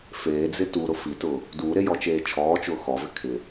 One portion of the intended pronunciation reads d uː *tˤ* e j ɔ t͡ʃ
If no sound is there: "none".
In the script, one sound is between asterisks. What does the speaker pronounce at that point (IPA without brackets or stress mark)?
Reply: ɾ